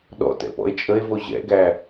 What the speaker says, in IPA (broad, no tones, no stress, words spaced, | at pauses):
ɗɔ̰tɛ̰pɔ̰e̯ t͡ʃʼəe̯vo ʑɛ̰ɡæ